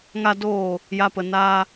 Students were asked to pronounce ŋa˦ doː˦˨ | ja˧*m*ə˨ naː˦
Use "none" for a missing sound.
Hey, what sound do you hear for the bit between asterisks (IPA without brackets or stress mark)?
p